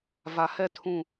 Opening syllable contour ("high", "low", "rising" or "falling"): low